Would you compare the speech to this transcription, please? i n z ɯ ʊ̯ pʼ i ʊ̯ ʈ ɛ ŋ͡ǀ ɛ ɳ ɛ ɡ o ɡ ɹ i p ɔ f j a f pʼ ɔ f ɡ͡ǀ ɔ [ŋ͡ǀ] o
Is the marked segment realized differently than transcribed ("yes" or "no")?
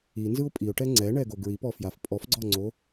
no